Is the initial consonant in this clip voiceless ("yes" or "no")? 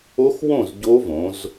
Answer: yes